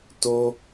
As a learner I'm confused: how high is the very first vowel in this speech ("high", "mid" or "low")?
mid